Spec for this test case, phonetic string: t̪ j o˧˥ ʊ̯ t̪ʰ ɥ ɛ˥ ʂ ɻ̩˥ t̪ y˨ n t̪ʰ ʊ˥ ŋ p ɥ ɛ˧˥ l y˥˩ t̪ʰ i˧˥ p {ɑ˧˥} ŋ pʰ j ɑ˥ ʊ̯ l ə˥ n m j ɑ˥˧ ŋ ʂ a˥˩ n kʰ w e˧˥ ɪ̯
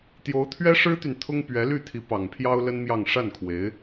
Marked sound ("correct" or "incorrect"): incorrect